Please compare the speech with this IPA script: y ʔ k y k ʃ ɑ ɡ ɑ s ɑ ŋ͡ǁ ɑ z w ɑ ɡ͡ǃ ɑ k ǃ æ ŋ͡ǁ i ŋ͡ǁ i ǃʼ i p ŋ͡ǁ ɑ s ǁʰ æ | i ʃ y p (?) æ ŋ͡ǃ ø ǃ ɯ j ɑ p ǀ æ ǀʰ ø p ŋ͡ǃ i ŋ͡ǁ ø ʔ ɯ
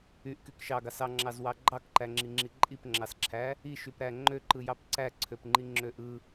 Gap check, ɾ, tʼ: ɾ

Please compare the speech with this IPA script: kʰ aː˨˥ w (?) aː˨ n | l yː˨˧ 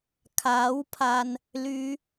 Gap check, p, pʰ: pʰ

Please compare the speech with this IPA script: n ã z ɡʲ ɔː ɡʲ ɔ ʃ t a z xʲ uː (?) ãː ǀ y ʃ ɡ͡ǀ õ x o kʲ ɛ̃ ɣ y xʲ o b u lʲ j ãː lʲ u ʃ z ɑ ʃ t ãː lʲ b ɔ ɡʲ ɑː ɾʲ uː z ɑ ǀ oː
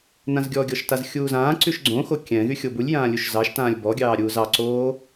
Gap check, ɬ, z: z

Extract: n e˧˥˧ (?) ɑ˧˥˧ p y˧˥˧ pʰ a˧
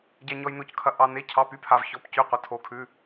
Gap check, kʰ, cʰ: cʰ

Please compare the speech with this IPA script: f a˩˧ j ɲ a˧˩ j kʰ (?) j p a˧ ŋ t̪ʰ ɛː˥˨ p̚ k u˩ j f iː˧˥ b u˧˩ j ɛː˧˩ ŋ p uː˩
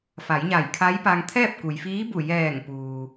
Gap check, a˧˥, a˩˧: a˧˥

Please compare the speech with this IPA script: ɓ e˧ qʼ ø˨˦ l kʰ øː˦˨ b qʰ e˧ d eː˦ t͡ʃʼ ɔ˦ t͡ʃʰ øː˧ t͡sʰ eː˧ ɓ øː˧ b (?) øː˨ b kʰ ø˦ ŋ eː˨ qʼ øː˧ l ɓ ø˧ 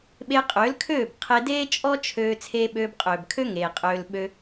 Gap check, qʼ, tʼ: qʼ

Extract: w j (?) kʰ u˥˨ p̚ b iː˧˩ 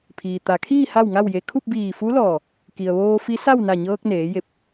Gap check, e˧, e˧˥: e˧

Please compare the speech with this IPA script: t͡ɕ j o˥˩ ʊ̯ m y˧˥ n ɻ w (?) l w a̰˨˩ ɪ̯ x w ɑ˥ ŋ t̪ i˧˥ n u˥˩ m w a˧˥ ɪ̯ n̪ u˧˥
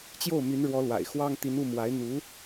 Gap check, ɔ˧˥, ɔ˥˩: ɔ˧˥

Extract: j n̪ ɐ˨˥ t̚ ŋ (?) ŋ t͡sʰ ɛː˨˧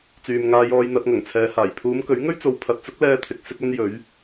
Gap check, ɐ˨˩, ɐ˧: ɐ˨˩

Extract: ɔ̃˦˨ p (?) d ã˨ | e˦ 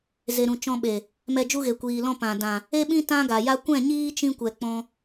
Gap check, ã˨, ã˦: ã˨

